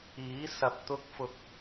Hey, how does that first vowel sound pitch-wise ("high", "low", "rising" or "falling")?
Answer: rising